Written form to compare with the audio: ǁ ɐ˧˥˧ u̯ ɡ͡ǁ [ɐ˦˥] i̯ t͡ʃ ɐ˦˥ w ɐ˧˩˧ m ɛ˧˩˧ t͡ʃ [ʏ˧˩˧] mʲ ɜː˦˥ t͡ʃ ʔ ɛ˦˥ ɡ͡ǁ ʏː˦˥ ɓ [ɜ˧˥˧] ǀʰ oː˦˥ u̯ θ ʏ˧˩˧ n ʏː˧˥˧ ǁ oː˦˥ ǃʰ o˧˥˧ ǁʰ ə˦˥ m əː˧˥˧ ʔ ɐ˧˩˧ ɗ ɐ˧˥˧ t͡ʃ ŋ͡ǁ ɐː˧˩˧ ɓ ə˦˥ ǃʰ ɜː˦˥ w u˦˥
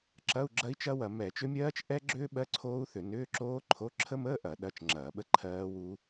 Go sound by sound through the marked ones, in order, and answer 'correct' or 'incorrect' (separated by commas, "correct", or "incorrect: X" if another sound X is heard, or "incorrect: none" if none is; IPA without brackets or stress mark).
correct, incorrect: ʏ˦˥, correct